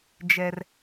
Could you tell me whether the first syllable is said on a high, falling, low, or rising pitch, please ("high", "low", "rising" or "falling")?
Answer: high